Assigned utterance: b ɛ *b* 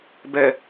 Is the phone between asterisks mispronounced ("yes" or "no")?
yes